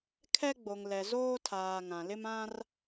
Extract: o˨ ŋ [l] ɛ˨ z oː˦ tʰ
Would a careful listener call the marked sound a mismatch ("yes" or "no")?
no